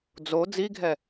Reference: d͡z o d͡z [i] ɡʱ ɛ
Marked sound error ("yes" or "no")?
no